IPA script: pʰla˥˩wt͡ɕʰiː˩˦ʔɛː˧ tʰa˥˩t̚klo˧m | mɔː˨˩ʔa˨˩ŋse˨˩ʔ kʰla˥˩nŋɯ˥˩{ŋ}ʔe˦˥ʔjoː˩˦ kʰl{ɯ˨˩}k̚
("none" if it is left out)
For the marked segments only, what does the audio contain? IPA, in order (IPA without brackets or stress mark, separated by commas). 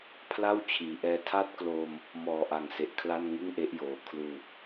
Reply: ŋ, u˨˩